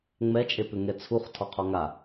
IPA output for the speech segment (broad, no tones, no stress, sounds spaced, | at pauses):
ŋ͡m ɛ t͡ʃʼ e p ʏ ŋ ɛ t͡sʰ u χ tʰ ɔ qʰ ɔ ŋ a